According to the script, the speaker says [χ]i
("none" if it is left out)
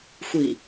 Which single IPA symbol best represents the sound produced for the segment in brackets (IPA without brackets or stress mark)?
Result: xʷ